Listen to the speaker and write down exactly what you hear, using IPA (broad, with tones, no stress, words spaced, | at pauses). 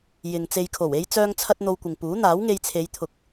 jɪ˨ŋt͡se˧jkʰo˨˩w e˥jt͡sœː˥ŋt͡sʰɐ˥t̚ n̪o˧wkʷɪ˨ŋpuː˨˥ n̪aː˨˥wŋe˧jt͡sʰe˨˧jt̪ʰʊ˨˥k̚